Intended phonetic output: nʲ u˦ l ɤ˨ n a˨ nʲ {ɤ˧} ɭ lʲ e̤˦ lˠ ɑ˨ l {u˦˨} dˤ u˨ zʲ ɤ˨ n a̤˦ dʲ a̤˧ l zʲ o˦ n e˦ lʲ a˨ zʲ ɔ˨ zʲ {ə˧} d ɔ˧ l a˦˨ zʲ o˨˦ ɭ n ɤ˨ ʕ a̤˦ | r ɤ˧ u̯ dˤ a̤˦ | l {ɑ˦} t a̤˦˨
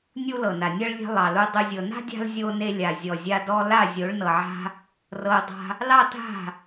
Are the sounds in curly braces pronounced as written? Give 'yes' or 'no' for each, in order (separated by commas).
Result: no, no, no, yes